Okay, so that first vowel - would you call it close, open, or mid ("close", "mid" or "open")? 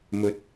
mid